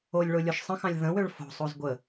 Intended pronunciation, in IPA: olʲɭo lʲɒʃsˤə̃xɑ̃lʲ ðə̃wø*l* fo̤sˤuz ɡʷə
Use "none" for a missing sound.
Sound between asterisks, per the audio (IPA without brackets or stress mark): ɭ